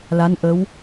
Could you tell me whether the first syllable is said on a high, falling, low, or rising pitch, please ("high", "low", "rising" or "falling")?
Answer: rising